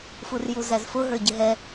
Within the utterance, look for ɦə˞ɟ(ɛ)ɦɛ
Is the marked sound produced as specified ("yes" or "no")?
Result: no